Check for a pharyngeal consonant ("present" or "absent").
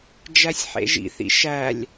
present